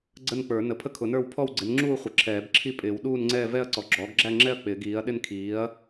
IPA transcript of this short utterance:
ɡ͡ǀ ə˥˧ n k͡p ə˞˨˩˦ n ə˨˩˦ pʰ ə˥˧ kʰ ʊ˨˩˦ n ə˞˥˧ w pʰ ɔ˥˧ w ɡ͡ǀ ɪ˩˥ n ŋ͡ǁ uː˥˧ χʷ ə˩˥ ǁʰ ɛː˨˩˦ b ǁʰ i˥˧ pʼ ɪː˨˩˦ w ɗ uː˥˧ n ŋ͡ǀ ɛː˥˧ v ɛ˥˧ ɐ̯ ǀ ɔ˩˥ ɡ͡ǁ ɔː˩˥ ɡ ɡ͡ǁ æ˥˧ ŋ͡ǁ ɛ˥˧ ɐ̯ k͡p ɪː˨˩˦ ɡ iː˩˥ ɐ̯ ɗ ɪ˥˧ n kʰ iː˩˥ ɐ̯

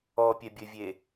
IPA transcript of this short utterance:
ɔ pʲ ɛ bʲ ɘ vʲ e

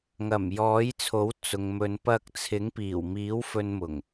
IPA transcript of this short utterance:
ŋ ɐ˨˩ m j ɔː˨˥ j t͡sʰ o˨˥ w t͡s ʊ˨ ŋ m ɵ˨˧ n p ɐ˧ k̚ t͡sʰ ɪ˨˥ ŋ p iː˨˩ w m iː˨˥ w f ɵ˧ n m ʊ˨˩ ŋ

